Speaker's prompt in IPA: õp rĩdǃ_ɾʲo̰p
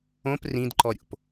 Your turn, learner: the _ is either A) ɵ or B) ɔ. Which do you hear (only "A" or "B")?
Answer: B